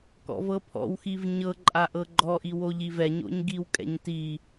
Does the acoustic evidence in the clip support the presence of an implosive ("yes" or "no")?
no